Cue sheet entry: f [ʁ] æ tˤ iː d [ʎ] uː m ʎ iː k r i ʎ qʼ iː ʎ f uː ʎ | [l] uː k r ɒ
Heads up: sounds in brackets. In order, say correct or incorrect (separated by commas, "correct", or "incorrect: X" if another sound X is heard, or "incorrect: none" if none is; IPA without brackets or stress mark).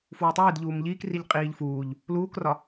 incorrect: w, correct, correct